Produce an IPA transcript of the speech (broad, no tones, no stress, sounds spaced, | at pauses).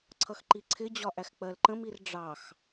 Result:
ǀʰ ʌ x ǃ i ǀʰ ɪ d͡ʑ ɒ ʔ æ x k͡p ɜ l ǃ ə̃ m i r ɖ͡ʐ ɑ x